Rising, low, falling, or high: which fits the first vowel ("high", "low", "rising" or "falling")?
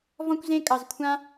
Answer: high